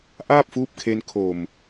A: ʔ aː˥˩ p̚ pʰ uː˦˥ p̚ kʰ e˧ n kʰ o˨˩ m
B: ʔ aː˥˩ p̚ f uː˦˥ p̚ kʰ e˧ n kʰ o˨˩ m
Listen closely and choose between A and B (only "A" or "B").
B